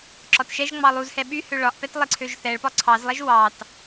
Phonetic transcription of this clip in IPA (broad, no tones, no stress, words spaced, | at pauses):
ǁɒtʃɛʒŋ͡mɑ lˠuzhɛ ɓy høɭɒʔpɛt lˠeǀʰøʒθɛɭpɒ ǀʰɑzlˠɛʒ wɑt